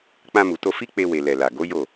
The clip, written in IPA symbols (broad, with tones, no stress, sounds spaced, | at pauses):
k͡p ã˧ m u˨ t o˧ f i˦ k͡p e˧ w e˨ l ɛ˨ l a˨ ɡ o˨˦ j o˦˨